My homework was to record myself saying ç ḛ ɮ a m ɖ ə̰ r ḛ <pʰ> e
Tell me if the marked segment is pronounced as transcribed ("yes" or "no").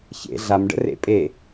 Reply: no